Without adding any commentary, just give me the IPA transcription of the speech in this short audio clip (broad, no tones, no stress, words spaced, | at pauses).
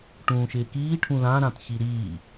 ʈũːʃɪːkiːʈʰũ lãɾãt çiɾiː